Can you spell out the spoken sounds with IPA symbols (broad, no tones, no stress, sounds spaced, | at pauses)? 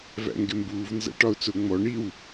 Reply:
v æ̰ ŋ ɡ ɪ m b uː v n z æ̰ ʈ ɒ ʊ̯ t͡s ʊ ŋ͡m ɔ ɳ i w